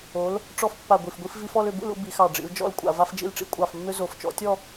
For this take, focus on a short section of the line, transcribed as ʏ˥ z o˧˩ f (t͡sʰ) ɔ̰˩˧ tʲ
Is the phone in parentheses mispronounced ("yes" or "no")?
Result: yes